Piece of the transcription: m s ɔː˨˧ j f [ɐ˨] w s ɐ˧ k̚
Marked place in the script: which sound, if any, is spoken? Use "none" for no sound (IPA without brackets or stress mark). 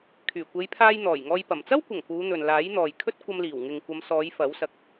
ɐ˨˥